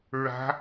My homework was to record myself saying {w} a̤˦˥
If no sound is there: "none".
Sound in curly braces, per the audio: ɹ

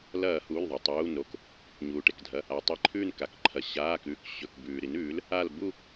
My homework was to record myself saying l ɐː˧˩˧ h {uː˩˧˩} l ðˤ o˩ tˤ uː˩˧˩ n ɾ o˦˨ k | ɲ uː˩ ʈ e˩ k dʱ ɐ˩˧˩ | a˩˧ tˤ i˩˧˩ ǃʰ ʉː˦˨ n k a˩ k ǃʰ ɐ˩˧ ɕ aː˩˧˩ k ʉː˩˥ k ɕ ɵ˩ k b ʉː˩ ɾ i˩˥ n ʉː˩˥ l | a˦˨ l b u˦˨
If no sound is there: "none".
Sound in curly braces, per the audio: uː˩˧˩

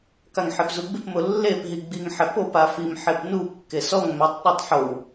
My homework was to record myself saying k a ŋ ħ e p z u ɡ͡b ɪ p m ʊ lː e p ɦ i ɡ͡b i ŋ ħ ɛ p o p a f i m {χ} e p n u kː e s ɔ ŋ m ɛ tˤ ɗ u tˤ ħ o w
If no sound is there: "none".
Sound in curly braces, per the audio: ħ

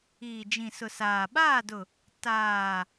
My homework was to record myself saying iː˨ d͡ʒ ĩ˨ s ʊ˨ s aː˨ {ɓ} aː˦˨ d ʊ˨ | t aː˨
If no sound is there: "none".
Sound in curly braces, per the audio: ɓ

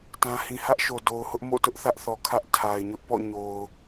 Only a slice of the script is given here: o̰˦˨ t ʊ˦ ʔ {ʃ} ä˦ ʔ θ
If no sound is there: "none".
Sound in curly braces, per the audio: θ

